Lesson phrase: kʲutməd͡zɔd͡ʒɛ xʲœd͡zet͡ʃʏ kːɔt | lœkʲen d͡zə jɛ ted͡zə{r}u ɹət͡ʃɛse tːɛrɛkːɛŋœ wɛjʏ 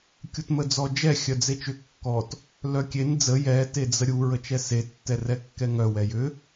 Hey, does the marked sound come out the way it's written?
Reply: no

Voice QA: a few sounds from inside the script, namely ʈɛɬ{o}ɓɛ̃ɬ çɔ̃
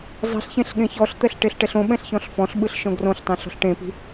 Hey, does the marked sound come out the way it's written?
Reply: no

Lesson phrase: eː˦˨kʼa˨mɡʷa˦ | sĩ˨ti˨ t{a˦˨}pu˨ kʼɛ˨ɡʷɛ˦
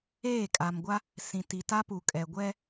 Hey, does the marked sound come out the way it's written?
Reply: no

